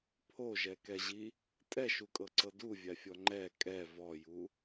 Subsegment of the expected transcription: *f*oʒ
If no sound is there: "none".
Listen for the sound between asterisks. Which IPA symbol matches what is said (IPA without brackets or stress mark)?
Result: pʰ